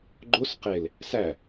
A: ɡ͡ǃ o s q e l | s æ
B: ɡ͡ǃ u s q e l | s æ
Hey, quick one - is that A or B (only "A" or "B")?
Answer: A